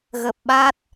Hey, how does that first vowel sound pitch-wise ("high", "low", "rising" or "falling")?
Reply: low